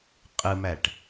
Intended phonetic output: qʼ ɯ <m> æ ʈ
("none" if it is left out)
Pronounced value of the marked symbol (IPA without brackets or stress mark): m